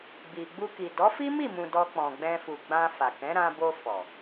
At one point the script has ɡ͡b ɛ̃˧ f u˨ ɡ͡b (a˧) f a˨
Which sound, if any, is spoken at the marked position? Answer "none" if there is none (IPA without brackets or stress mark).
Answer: ã˧